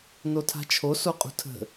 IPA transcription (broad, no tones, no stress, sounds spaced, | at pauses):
n o tʰ a̤ t͡ʃʰ o s o qʼ ṳ tʰ ə̤